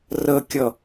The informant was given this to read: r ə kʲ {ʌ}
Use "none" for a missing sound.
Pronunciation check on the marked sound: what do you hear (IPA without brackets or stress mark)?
ʌ